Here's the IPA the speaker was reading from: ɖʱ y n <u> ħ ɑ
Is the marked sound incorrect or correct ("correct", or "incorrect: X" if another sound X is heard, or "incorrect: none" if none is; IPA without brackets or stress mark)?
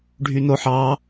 incorrect: o